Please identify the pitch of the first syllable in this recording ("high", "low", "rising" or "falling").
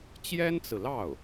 high